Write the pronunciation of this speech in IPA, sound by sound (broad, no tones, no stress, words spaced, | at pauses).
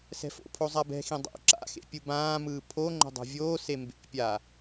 sɛ̤fo̰pʰo zˤabɛ̤xĩ dˤo̰ ǁa̰xḛ pʲɯbãːmɯː pʰo ŋ͡ǃo̤dˤo̤vʲoːse mbḛpʲa